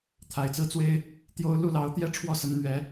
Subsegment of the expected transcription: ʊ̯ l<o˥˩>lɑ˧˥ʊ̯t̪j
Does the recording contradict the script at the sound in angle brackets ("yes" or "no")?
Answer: yes